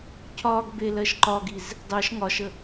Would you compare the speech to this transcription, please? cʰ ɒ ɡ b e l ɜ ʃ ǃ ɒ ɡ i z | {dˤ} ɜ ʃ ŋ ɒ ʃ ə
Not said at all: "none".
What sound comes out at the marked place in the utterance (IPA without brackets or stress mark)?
dˤ